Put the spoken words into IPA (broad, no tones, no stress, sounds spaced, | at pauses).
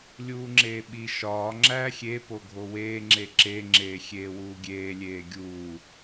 lʲ uː ŋ͡ǁ eː ɓ i ʃ ɒː ŋ͡ǁ æː xʲ e p o ɡʱ o w eː ŋ͡ǁ e ǁ e ŋ͡ǁ eː xʲ eː w uː ɡʲ eː lʲ eː ɡʲ uː